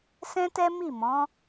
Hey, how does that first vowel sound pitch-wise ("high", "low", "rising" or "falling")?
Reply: high